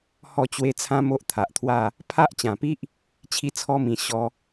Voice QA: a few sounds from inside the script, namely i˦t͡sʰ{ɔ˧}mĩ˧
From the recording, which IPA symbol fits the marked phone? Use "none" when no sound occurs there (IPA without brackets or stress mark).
ɔ˦